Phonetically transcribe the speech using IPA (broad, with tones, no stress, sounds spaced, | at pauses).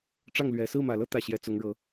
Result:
ʈ͡ʂ ɑ˥˩ ŋ l ɥ ɛ˨˩ s ɹ̩˥˩ m ä˨˩ l ɤ˥˧ t̪ ä˥˩ ɕ j ɛ˧˥ t͡s ʊ˧˥ ŋ ɻ ɤ˧˥